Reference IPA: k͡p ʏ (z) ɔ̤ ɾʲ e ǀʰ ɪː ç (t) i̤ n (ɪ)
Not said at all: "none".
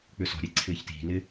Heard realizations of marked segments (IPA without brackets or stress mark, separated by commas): s, t, ɪ